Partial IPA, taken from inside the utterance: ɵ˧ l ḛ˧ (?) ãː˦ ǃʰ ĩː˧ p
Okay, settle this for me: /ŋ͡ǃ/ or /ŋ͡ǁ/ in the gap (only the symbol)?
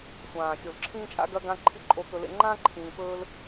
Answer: ŋ͡ǃ